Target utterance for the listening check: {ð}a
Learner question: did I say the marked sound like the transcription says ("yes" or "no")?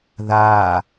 yes